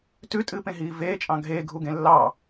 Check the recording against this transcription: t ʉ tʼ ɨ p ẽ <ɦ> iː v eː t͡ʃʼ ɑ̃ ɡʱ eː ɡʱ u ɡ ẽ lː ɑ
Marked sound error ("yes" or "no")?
no